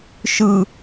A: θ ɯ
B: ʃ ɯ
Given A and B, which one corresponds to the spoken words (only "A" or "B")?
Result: B